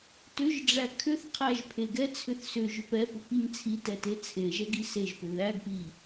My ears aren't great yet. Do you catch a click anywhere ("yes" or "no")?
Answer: no